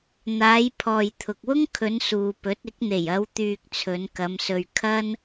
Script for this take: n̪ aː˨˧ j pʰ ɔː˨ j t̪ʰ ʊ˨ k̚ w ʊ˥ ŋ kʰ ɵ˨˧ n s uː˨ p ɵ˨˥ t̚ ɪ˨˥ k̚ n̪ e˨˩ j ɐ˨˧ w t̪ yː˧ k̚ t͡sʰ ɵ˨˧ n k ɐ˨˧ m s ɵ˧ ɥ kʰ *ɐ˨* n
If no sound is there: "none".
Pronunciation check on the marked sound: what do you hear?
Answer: ɐ˥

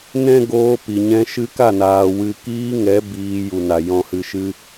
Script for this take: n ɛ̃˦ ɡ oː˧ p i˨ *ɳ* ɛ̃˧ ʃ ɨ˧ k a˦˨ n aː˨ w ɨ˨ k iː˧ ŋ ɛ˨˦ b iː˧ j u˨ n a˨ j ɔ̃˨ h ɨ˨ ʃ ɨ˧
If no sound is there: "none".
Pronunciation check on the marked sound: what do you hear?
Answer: ɲ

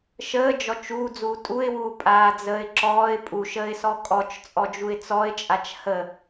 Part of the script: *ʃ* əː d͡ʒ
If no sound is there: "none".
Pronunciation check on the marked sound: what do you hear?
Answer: ʃ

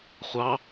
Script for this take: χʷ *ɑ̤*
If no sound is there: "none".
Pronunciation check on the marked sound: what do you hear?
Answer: ɑ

